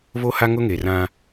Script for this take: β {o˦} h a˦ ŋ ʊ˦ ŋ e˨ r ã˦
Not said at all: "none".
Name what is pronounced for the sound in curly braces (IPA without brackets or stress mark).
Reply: o˦